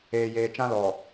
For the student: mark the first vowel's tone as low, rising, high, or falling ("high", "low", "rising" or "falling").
low